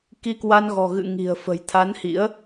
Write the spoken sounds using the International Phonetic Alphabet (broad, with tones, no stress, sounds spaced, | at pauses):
k i˧ k w a˧ n ɣ ɔ̤˨˩ ɣ ɨ̰˧˨ ŋ i̤˨˩ ə̯ f ə̤˨˩ j t̪ʰ a˨˦ n h ḭ˧˥ ə̯